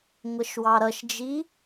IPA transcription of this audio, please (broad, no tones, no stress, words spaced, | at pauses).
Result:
ŋʷəʃwɑɾʌʃd͡ʒi